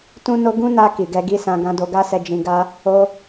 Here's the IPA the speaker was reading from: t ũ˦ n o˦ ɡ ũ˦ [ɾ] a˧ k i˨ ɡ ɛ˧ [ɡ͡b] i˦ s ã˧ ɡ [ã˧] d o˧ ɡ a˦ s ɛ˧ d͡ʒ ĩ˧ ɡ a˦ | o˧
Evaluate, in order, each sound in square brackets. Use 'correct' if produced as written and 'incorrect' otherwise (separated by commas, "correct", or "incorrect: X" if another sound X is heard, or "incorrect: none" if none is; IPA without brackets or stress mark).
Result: incorrect: n, incorrect: ɡ, correct